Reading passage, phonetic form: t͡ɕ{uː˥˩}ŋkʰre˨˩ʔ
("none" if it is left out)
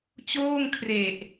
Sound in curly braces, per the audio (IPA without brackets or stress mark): oː˥˩